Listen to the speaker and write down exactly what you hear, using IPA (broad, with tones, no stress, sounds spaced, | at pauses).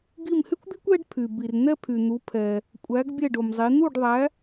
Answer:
ɡ i˦˨ m h y˥ kʷ d̪ i˥ kʷ ɛ˥ ɖ pʰ y˨ b i˨ r n̪ ɛ˥ pʰ y˨ n̪ u˨˦ pʰ ɛ˨ | kʷʼ æ˨˦ ɡ bʲ ɛ˦˨ ɖ o˨ m zˤ i˨˦ n̪ u˦˨ ɖ ðˤ æ˨˦